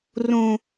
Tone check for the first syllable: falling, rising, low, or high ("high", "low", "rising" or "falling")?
high